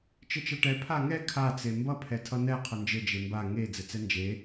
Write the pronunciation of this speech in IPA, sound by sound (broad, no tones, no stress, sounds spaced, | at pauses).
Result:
t͡ʃ ɘ t͡ʃ ʌ ʈ ɛ pʰ a ŋ ɛ kʰ a t͡s e m b ʌ pʰ ɛ tʰ ʌ n̪ ɛ qʰ ʌ n d͡ʒ ɘ d͡ʒ e m b a ŋ e d͡z ɘ t͡s ɛ n d͡ʒ e